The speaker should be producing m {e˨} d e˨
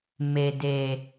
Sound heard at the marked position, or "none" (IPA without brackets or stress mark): e˨